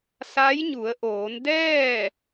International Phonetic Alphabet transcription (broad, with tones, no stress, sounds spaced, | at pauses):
s a˧˥ j ɲ u˩˧ ə̯ ʔ oː˩˧ n d ɛː˥˨